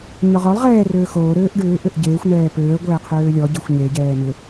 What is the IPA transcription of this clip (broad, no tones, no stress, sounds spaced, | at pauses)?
ɲ ɔ ʁ ɔ lˠ ʁ ɛː r øː x oː ɾ øː ʔ ɖ ʏː ʔ ʏ ʔ ɟ eː xʷ n̪ ɛː p øː ə̯ ɡʷ ɛ ə̯ qʰ øː lʲ ɔ ɟ e xʷ ɲ e ɟ ɛː n ʏ